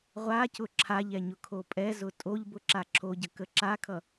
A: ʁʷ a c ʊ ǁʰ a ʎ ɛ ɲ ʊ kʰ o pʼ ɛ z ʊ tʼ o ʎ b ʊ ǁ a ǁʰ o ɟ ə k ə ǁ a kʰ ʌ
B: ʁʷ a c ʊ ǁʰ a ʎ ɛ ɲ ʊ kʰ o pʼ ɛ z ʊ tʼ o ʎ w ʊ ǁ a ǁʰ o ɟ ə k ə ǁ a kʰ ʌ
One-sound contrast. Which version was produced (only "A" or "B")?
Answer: A